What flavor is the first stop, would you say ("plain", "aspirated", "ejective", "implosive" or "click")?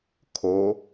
aspirated